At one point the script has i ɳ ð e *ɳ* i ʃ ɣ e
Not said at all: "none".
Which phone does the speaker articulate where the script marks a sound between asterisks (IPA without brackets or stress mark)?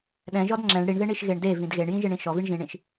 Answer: ɳ